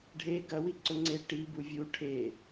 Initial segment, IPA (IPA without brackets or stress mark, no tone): ɖʱ